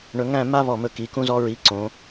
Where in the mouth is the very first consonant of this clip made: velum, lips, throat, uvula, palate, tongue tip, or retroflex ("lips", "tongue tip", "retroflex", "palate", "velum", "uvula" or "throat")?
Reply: retroflex